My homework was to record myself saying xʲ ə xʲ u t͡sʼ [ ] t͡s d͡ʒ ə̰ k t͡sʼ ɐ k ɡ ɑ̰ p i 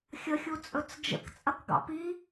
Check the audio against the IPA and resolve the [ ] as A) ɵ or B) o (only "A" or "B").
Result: A